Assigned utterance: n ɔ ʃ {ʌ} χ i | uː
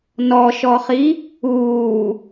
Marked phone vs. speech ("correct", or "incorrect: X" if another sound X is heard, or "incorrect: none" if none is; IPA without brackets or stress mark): incorrect: ɔ